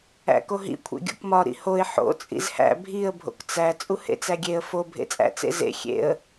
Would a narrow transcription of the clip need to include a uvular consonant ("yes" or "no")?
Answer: no